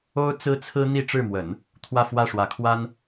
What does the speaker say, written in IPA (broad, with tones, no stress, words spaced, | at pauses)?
o˥ʊ̯ t͡sɹ̩˥t͡sʰɹ̩˥ n̪i˥˧ ʈ͡ʂɻ̩˥˩mwə˨˩˦n | t̪ʰwä˥˧fwä˥˩ʂwä˧˥kʰwa˥n